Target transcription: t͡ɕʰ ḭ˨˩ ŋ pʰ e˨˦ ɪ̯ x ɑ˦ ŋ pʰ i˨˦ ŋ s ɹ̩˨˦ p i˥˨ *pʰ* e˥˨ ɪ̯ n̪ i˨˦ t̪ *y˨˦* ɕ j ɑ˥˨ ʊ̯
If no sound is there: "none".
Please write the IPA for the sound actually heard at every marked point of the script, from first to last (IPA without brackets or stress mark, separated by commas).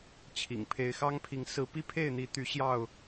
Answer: pʰ, y˨˦